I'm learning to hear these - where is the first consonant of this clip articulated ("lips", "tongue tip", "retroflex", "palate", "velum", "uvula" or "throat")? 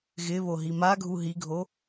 velum